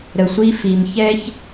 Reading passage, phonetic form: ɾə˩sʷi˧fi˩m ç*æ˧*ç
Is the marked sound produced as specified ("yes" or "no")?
no